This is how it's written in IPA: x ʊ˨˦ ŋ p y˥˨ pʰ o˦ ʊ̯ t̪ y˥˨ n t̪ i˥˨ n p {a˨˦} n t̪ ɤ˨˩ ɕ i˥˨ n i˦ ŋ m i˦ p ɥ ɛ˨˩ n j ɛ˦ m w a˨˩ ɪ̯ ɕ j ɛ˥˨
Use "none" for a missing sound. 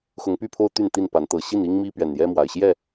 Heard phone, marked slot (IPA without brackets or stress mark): a˨˦